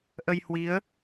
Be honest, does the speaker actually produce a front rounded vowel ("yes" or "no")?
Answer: no